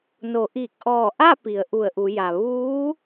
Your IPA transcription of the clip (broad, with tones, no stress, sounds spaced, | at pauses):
n o˩˧ ʔ i˧˩ k̚ ʔ ɔː˧˩ ʔ a˥˨ p i˩˧ ə̯ ʔ u˧˩ ə̯ ʔ u˩˧ j a˩ ʋ uː˧˥